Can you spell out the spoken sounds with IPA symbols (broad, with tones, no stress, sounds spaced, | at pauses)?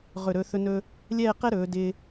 ʁ ɵ˧˩ ɾ ɵ˧ θ ɵ˧ n ɵː˧ | lʲ ɛː˥˧ q ɛ˥ ɾ ɵː˩˧ d ɪː˧